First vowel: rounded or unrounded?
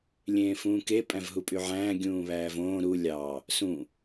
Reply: unrounded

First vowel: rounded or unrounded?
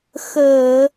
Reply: unrounded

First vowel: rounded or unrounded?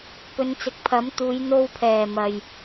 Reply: rounded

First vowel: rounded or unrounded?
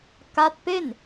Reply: unrounded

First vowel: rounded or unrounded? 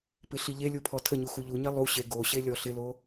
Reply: unrounded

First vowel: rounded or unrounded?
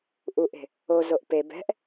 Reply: rounded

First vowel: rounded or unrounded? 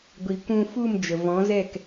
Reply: unrounded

